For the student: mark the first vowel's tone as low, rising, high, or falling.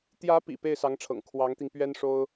rising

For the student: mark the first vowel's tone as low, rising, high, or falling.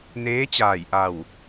rising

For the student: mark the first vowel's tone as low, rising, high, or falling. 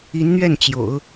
rising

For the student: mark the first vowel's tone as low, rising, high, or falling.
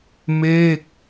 falling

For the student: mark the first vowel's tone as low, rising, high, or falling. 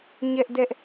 high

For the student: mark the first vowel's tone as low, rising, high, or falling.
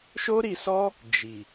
high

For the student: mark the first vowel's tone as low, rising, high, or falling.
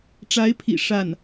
rising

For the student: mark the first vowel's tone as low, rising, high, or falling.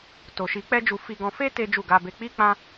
low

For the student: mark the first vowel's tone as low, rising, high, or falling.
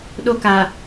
high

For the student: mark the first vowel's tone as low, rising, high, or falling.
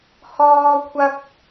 high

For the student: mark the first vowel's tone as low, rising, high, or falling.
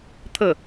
falling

